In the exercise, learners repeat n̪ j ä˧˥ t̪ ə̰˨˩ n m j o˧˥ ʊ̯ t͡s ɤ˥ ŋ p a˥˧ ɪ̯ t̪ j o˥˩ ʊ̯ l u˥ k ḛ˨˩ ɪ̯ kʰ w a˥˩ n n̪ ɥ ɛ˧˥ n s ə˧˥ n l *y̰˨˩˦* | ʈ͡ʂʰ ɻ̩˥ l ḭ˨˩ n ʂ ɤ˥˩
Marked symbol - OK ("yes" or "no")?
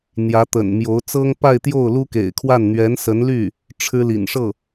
no